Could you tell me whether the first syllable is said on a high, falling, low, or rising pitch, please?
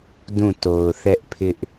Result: falling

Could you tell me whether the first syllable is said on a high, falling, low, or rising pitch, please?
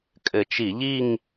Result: low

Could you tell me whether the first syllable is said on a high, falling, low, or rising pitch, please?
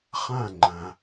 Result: falling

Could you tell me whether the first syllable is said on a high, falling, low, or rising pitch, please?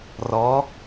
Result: rising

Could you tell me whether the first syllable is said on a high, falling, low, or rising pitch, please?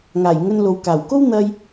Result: low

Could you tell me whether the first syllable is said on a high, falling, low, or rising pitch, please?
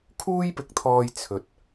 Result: high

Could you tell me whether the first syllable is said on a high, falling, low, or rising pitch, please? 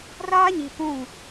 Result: high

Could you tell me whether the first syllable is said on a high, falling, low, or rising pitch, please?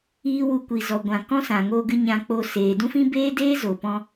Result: high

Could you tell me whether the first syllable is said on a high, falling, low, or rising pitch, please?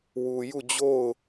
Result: low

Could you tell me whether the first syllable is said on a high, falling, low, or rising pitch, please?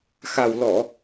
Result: low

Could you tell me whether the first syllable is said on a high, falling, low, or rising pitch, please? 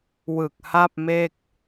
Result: low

